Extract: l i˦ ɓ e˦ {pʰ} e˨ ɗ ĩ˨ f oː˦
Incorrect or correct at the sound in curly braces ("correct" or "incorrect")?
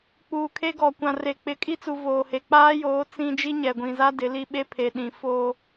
correct